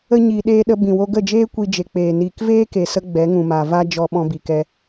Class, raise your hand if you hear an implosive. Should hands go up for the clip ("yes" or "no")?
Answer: yes